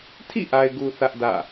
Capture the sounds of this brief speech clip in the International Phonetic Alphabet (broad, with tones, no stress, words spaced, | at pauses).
tʰḭ˦˨ʔa˨ɪ̯ɡu˨ θä˦ʔdä̰˦˨